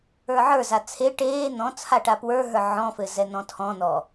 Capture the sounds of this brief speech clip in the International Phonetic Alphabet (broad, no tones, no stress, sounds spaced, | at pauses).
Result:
ə˞ ʕ ə˞ z a t͡sʰ e ʈ eː n̪ ɔ̃ t͡sʰ a ʈ a p w ə˞ ɦ ə˞ ʕ ɔ̃ f ɘ z ɛ n̪ ɔ̃ tʰ ɔ̃ n̪ ɔ